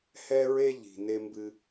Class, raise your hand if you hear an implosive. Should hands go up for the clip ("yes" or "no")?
no